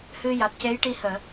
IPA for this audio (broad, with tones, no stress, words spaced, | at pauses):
hɨ˧ ja˨˩t̚ce˧˥jʈi˧həː˨˩˨